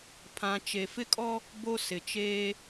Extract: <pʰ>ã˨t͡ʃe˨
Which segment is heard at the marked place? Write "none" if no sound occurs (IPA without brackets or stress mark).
pʰ